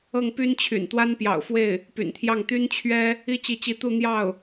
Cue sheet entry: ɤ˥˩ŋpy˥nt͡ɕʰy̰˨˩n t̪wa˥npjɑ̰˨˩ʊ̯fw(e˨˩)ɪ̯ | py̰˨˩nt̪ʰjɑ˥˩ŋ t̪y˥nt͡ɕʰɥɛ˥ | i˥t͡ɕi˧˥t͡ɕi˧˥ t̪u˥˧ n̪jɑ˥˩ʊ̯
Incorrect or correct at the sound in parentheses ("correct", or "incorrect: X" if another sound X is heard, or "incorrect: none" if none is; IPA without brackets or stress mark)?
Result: incorrect: e˥˩